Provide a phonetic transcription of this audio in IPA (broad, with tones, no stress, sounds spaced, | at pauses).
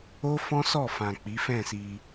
o˦ f ɔ̃˦ s ɔ˦˨ f ã˨ k͡p i˨˦ f ɛ̃˦˨ s i˧